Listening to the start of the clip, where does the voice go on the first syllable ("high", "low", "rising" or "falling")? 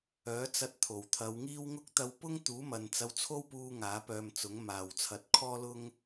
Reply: rising